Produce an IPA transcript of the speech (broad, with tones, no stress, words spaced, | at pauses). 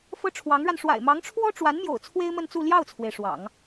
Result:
fɤ˥ʈ͡ʂʰwɑ˧˥ŋɻa˧n ʂwa̰˨˩ɪ̯mɑ˧˥ŋʈ͡ʂʰwɔ˥ ʈ͡ʂwa˧˥nmjo̰˨˩ʊ̯ t͡sʰwe˥ɪ̯mə˥˧nt͡su˥˧ ljɑ˥˩ʊ̯t͡sʰwe˩ɪ̯ ʂwɑ̰˨˩˦ŋ